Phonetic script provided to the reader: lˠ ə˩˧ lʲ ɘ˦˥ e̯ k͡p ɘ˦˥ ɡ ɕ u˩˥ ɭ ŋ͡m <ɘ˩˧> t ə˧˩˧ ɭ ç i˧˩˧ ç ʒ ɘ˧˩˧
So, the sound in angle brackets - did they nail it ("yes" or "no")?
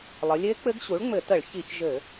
no